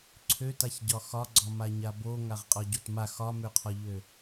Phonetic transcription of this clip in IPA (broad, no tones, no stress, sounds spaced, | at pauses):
ǀʰ ø t a ç ɟ ɒ x ɒ ɡ͡ǀ ɒ m a ɲ a b o ŋ a ʁ qʼ ɒ ɟ o t m a x ɒ m ø qʰ ɒ ʎ ø